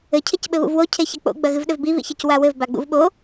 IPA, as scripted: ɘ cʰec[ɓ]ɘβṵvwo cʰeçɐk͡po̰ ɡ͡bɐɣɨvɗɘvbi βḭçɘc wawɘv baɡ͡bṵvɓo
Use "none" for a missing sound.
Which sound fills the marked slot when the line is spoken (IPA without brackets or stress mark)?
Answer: ɓ